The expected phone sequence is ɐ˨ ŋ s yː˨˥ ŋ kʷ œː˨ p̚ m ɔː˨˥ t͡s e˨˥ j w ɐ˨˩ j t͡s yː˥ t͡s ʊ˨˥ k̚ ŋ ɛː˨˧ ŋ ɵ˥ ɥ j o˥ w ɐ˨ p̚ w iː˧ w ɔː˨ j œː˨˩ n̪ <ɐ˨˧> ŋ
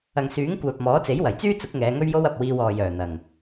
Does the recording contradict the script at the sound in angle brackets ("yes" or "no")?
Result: yes